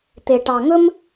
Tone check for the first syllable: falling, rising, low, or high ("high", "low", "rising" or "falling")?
low